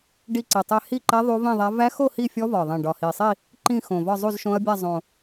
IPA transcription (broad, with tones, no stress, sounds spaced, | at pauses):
ɖ i˥˧ ǀ i˨˩ tˤ ɛ˥˧ h i˥˧ ǃ ɛ˦˥ ðˤ u˦˥ v ĩ˥˧ ðˤ æ˦˥ v æ˦˥ x o˥˧ h i˥˧ fʲ ɔ˦˥ v ɒ˨˩ ðˤ ĩ˨˩ ɖ ɒ˨˩ h i˨˩ sˤ i˥˧ | ǃ ĩ˥˧ x õ˨˩ v ɒ˥˧ zˤ u˥˧ z ʃ õ˦˥ ɐ̯ bʲ a˥˧ zˤ õ˨˩